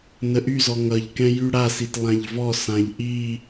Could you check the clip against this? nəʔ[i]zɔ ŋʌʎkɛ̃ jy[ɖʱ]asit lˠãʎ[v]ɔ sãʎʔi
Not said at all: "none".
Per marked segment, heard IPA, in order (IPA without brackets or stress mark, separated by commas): y, ɽ, v